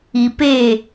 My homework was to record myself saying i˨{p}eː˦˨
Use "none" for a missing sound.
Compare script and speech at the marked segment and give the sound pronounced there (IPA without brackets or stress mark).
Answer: p